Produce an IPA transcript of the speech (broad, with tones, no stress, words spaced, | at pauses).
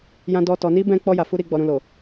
jã˧dɔ˧ tɔ˨ni˧ bɛ̃˧k͡pɔ˧ ja˨fu˧ ɾi˨ɡ͡bɔ˨ ɾũ˨lo˨